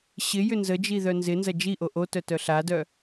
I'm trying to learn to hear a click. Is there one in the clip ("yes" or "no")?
no